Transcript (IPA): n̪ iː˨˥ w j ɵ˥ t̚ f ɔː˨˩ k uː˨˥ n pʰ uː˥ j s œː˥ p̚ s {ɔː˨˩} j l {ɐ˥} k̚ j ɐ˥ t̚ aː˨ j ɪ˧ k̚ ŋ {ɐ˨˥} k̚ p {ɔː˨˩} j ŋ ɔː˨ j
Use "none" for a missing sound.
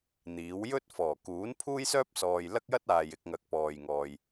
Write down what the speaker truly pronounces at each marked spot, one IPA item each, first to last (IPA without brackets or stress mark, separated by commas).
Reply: ɔː˨, ɐ˥, ɐ˨˥, ɔː˨